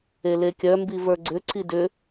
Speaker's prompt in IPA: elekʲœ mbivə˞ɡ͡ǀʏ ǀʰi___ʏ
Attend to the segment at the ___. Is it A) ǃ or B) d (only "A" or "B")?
B